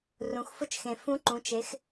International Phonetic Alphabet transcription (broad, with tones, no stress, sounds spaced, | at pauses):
r ũ˩˧ x f ʊ˧˥ t͡ʃ x ẽ˩ f ũ˧˥ ǃ ũ˩˧ t͡ʃ e˩˧ x